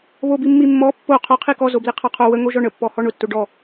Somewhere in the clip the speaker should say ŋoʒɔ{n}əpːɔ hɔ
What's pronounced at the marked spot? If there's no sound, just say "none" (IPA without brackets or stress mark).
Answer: ɳ